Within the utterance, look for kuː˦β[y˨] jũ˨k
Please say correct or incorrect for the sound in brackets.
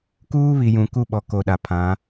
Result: incorrect